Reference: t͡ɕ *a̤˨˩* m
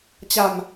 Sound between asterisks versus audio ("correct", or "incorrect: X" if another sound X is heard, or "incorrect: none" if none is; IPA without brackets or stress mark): correct